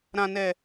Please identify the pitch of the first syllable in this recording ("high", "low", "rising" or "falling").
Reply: low